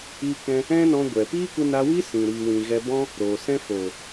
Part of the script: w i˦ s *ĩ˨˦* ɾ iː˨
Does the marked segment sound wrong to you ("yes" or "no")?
yes